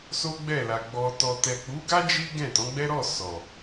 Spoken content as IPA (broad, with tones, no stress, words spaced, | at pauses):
so˦ɡ͡bɛ˦˨la˨ ɡ͡bɔ˨ tɔ˨tɛ˨k͡pu˨˦ɡa˦ d͡ʒi˦ ɡɛ̃˦˨tɔ̃˨˦ɡ͡bɛ˦ ɾɔ˦˨ sɔ˨